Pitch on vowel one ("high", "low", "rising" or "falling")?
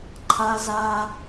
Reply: high